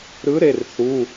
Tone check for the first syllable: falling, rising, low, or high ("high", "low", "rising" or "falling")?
rising